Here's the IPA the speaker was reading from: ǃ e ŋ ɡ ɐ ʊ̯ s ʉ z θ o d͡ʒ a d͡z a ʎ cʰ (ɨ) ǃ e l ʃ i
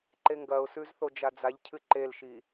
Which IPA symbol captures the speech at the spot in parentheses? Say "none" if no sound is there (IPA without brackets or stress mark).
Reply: ɨ